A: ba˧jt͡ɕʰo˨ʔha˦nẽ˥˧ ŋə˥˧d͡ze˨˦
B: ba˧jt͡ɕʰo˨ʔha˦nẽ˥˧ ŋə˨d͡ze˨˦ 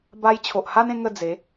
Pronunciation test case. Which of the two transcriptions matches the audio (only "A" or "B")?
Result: A